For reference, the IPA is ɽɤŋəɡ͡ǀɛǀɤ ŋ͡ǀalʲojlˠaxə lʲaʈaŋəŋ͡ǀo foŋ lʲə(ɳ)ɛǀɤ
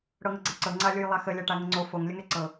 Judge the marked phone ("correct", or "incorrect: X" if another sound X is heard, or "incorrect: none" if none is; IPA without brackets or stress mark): incorrect: ŋ